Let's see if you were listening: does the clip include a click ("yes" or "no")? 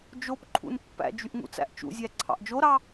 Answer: yes